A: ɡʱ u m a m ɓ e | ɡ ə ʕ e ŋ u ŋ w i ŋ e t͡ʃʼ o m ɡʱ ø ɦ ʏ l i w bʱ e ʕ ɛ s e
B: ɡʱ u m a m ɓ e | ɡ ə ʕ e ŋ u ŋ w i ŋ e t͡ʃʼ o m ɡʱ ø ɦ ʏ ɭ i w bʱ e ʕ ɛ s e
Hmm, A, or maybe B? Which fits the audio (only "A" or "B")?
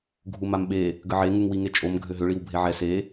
B